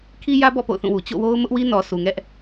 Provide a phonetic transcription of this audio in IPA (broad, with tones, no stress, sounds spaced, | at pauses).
kʰ i˦ j ä˦ b ɔ̰˦˨ p o̰˦˨ ʊ̯ θ ũ˦˨ w u˨ t͡ɕ o̰˦˨ w o˦ ʊ̯ m ʊ˦ ʔ w i˦ n ɔ˨ s u˨ ŋ ɛ˦ ʔ